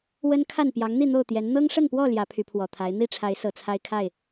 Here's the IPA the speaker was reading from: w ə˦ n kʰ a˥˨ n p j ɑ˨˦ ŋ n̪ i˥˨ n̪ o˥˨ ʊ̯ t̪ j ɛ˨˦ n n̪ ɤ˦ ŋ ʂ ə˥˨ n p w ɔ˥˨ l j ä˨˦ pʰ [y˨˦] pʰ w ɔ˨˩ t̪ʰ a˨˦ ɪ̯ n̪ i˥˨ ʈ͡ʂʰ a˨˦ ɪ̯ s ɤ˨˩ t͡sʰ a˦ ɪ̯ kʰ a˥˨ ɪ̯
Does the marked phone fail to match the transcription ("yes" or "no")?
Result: no